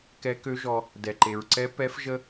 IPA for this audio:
k ɛ˧˥ k ø˧˥ ʒ ɔ˧ | d ɛ˩ ǃ e˩ ɹ ǀ ɛ˧˥ p ɛ˧˥ f ʒ ə˥

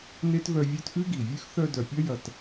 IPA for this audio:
n e˥ t v œ˦ vʲ œ˦ t ʔ ʉ˥ ɡ i˩ vʲ ʉ˥ x θ œ˦ d œ˨ pʲ ɐ˥ j ɐ˨ t

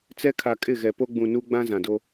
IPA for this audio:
t͡s ɛ˦ kʰ a˨ kʼ ɪ˦˨ ɣ ɛ˨ p o˦ ɡ͡b ũ˨ n u˦ ɡ͡b ã˦ z ã˨ d o˦

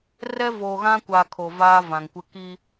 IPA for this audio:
r ɛ˦ v o˨ ɣ ã˦ kʷ a˨ kʰ o˨ v aː˦ v ã˨ ŋ kʷ ɪ˦ k i˦

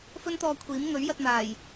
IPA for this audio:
f ɵ˥ n t̪ ɔː˧ kʷʰ iː˨˥ m ŋ ɵ˨˥ ɥ j ɐ˧ t̚ n̪ aː˨˩ j

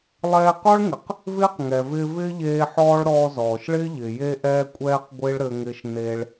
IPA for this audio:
lˠ ɛː˧ q ɔ˥ ɭ ŋ ɪ˩ q | v ɪː˥ q ŋ ɛ˩ v ɪː˧ v ɪː˥ ʎ eː˧ ħ ɔː˥ ɭ ɾ ɔː˧ z ɔː˩ ʃ ɭ ɪː˥ ʎ ɪ˩ j e˧ ʔ ɛː˧ kʷʼ ɛː˧ q ɡʷ ɪː˥ ɭ ɾ ɘ˧ ŋ ɪː˧ ʃ n e˧ ɭ

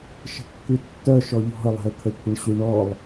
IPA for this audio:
ʃ ə̤ kː ʉ tː œ ʃ ɔ ʎ ɔ̤ ə̯ lˠ e̤ ə̯ t̪ʰ ə kʷʰ ɪ ɳ ɕ ʉ ɳ ɔ lˠ

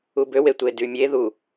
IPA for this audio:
u b ø w e tʷ e d y mʲ e ð u

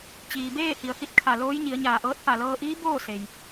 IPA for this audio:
t͡ɕ iː˩ b eː˥˨ h i˩ ə̯ h i˧˥ t̚ kʰ a˧˩ l oː˧˥ j ɲ i˩˧ ə̯ ɲ aː˧˩ ʔ ɤː˧˥ t̚ p a˧˩ l ɤː˧ ʔ iː˧˥ b oː˥˨ s e˩ j

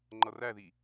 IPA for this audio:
ŋ͡ǃ ʌ r æ ð i

